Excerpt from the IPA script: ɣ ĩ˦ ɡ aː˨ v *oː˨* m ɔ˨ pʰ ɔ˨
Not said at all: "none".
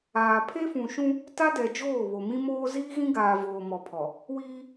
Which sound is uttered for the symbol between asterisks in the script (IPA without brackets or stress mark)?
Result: oː˨